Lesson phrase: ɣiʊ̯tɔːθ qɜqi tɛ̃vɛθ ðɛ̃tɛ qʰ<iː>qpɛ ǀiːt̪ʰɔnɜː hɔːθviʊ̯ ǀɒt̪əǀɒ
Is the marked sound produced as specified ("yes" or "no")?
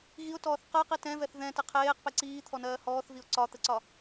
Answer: no